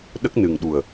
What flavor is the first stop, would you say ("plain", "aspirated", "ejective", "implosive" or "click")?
implosive